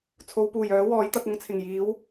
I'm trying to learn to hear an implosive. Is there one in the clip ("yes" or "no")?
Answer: no